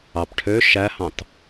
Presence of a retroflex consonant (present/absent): present